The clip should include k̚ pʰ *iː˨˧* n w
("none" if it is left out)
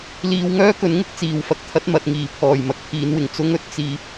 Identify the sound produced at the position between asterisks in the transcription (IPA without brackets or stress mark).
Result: iː˨˧